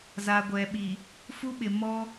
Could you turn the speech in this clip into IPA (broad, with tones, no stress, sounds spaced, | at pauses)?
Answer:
z a˨ ɡʷ ɛ˨ ɓ i˨ | f u˦ ɓ ɪ˨ m ɔ˦